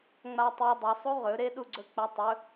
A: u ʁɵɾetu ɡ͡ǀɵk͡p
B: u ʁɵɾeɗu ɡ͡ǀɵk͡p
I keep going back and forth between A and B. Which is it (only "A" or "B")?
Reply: B